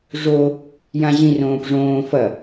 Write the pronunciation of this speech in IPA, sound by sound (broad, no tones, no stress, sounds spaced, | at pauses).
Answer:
ʐ o | j ã ʑ ĩ r õː p ʐ õː f ɐ